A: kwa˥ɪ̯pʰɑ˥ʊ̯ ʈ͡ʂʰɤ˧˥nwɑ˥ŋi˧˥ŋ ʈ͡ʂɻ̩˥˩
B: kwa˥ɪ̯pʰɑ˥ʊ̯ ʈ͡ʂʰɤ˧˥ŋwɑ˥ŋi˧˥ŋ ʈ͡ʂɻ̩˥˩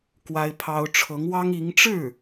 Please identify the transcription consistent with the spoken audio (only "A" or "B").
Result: B